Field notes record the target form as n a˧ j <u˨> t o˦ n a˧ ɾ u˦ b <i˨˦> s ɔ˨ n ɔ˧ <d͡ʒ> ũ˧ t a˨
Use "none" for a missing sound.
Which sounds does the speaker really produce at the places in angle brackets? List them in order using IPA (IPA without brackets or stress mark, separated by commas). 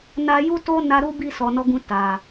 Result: u˦, i˦˨, ɡ